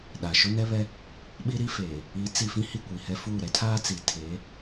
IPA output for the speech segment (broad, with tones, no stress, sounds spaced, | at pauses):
ɗ a˨ ʃ o˦ n ɛ˦ β ɛ˦ | ɓ i˦ ɾ i˦ f eː˨ | i˨˦ t͡s i˨ f ĩ˦ h i˦˨ kʷ i˨ h ɛ˦ f uː˦˨ ɾ ɛ˦ tʰ aː˦ t͡s i˨ tʰ eː˨˦